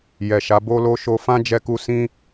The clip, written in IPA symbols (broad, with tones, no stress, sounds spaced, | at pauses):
j ɛ˨ ʃ a˨˦ b o˦ l o˦ ʃ o˧ f ã˦ d͡ʒ ɛ˧ k u˧ s ĩ˦